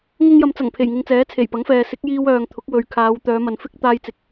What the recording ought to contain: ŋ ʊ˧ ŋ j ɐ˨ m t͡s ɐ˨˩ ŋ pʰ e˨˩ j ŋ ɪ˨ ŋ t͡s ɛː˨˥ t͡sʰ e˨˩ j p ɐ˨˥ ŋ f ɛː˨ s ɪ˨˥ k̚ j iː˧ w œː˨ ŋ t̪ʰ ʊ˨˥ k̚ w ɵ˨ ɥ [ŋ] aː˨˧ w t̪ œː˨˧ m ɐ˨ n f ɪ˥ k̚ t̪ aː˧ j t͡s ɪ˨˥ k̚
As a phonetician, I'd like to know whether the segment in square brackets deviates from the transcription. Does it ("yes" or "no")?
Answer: yes